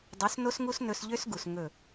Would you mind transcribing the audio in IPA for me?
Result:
dˤ o˨˦ s n o˦ s ŋ u˦ s n ɵ˧ s ʎ ø˦ s ɡ u˨ s ŋ ɵ˦˨

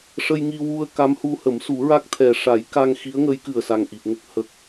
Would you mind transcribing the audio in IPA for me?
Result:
ʂ ə˧ j ŋ i˧ w u˧ ə̯ k a˧˥ m h u˧ h ə˨˩˦ m s u˨˩˦ ɹ a˦˥ k̚ t̪ʰ ɛ˨˩ ʂ a˨˩˦ j k a˧ ŋ x i˧˥ ə̯ ŋ ə˧˥ j k ɨ˨˩ ə̯ s a˨˩ ŋ ʔ i˨˩ p̚ ŋ ə˦˥ k̚ h ə˨˩ k̚

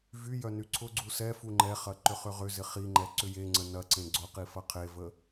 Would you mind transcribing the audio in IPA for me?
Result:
v y j œ n y ǀʰ ʊ ɡ͡ǀ u s ɛ f u ŋ͡ǃ ɛ χ ɐ ǃ ʏ χ ʏ ʁ ʏ z ɪ χ i ŋ͡ǃ ɛ ǀ ʏ j e ŋ͡ǀ ə n ɐ ǀ ẽ ɡ͡ǀ ʊ q i f ɐ qʰ e v ə

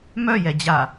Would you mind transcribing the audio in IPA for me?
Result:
m œ j ɛ d͡ʑ a

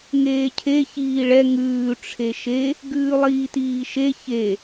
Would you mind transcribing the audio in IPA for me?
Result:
ŋ eː cʰ e ç iː ɭ ɛ ŋ ʉː ʈ͡ʂʰ e ʃ e | ɡ ʉː lˠ iː t iː ʃ e ç e

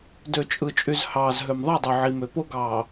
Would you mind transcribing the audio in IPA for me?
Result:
d ø˨ t͡ʃʼ ɯ˨ t͡ʃʼ y˨ z h ɑː˨ z ɦ ø˨ m ðˤ i˦˨ dˤ y˨ ʕ i˨ m ø˨ p o˦ ɡ ɑː˨

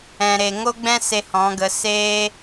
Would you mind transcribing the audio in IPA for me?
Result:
ɛ̃˨ ɾ eː˨ ŋ o˦ ɡ͡b ɛ̃˦ s e˧ h ɔ̃˨˦ ɡ ə˨˦ s eː˦

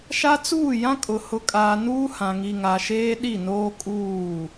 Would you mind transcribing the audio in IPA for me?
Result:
ʃ a˦ t͡s uː˦˨ j ã˦ kʼ ʊ˨ h ʊ˨ kʼ aː˨ n uː˦ h ã˨ ŋ i˨ ŋ a˨ ʃ eː˦ ɗ i˦˨ n oː˦ kʼ uː˦˨

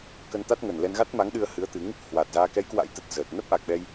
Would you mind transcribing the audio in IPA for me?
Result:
k ə˧ n t̪ a˦˥ t̚ ŋ ə˨˩ n l ɛ˧ n ɣ a˦˥ t̚ m a˨˦ ŋ ɗ ɨ˧ ə̯ h ɨ˨˦ ə̯ t̪ ɨ˨˦ ŋ | h w a˨˩ t̚ z aː˧ k ɛ˨˦ j k w a̰˧˥ j t̪ ə˨˩ t̚ z əː˨˩ t̚ n ə˦˥ p̚ ʔ a˨˩ k̚ ɓ ɛ˧ j

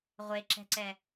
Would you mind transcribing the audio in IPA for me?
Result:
ʁʷ e ǁ ɛ̤ ǀ ɛ

